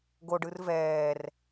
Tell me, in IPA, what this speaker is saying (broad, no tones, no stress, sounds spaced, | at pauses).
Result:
ɡ o ɖ ɯ r v ɛː r